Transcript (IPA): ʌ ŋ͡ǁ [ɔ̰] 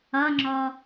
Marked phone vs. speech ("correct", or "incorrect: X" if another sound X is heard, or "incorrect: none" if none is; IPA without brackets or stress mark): incorrect: ɔ